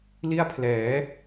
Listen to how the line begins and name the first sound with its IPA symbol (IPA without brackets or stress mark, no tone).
l